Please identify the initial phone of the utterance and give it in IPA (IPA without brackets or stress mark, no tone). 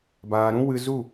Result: b